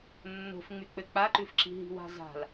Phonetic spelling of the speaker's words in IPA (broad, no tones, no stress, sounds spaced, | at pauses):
nː o̤ f ŋ͡m y k͡p ɘ k͡p a ǃ ʉ f ǁ i̤ ɦ i̤ w a̤ z a̤ l